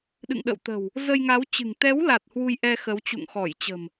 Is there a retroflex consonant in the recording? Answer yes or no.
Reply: no